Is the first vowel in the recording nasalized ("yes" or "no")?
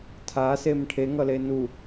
no